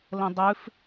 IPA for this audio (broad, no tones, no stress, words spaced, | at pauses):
lə̃dˤʉf